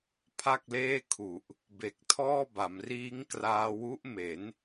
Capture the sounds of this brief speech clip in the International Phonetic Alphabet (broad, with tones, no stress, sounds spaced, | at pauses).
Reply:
pʰ a˥˩ k̚ l eː˥˩ kʰ u˨˩ ʔ | b e˨˩ k̚ tʰ ɔː˥˩ b a˩˦ m r iː˦˥ ŋ k r aː˧ w u˦˥ ʔ m e˩˦ n